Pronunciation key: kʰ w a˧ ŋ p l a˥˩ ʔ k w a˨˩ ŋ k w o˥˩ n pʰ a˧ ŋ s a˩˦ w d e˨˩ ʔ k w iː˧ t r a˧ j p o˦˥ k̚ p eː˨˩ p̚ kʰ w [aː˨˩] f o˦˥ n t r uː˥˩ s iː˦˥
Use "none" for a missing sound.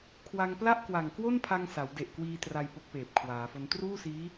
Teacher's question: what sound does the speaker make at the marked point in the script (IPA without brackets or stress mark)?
aː˩˦